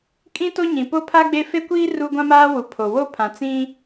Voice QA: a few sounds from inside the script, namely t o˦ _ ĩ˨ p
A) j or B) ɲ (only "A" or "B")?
B